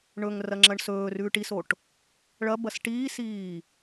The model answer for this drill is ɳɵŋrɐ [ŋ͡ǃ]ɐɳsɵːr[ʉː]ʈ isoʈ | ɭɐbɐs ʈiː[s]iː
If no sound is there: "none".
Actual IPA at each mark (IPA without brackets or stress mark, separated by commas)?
ŋ͡ǁ, ʉː, s